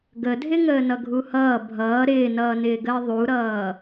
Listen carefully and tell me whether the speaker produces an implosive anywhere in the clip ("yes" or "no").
no